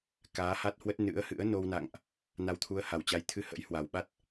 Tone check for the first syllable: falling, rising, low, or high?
rising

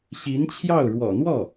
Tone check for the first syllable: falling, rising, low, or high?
rising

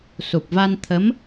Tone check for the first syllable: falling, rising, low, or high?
low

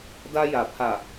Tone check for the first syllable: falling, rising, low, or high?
high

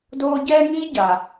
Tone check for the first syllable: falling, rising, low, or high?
high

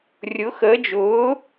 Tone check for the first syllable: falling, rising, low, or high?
rising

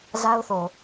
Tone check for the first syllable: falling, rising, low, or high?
high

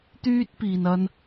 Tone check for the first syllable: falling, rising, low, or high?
high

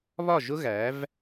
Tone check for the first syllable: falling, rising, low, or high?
falling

